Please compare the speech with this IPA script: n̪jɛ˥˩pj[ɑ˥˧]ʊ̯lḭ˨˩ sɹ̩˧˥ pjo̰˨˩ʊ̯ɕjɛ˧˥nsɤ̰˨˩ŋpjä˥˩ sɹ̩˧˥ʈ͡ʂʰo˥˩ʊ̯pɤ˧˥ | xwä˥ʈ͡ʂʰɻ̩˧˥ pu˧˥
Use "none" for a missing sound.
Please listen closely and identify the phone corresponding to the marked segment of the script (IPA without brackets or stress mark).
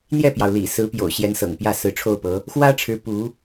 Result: ɑ˩